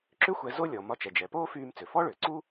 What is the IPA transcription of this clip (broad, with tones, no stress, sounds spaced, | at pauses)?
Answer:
ǁ ʏ˥ xʷ ɛ˧ z o˥ lʲ ɔ˩ m ɒ˧ t͡ʃ ɛ˩ d͡ʒ ɛ˩ p oː˥ f yː˧ m t͡s ʏ˩ f ɔ˥ ɭ ʏː˩ ǀ u˥